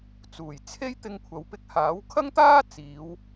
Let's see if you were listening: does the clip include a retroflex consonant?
no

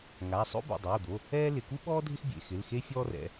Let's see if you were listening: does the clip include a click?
no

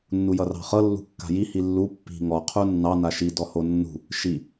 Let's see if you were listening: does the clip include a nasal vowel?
no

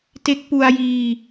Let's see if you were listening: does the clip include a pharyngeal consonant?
no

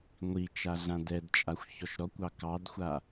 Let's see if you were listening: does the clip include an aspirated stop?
no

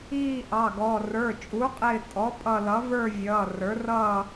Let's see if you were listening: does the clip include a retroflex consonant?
no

